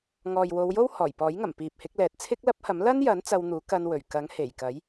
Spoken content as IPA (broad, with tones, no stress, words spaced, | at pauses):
ŋɔː˨jwo˨˧wjo˥w hɔː˨˩jpɔː˨˥jŋɐ˨˩m piː˨p̚hɪ˨˥k̚lɛː˨t̚ t͡sʰɪ˥k̚lɐ˥p̚hɐ˨˥m lɐ˥njɐ˨˥n t͡sɐ˧wn̪uː˨˥kɐ˧nwɵ˨˩ɥ kɐ˨˥ŋhe˨˩jkɐ˨˥j